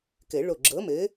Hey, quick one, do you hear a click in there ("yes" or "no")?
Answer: yes